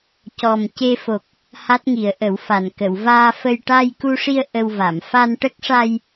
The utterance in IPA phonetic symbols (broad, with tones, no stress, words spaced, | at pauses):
cɔ˨˩mce˧fo˨˩k̚ | ha˦˥t̚ŋi˨˩˦ə̯ʔə˨˩˦wfa˨˩n kə˨˩˨wvaː˧fə˧j ʈa˧jku˧ʂi˧ə̯ ʔə˧wva˨˩˨m fa˧nʈə˦˥k̚ʂa˧j